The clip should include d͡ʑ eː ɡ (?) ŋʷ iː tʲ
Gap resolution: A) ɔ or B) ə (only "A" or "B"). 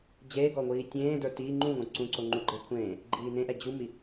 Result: A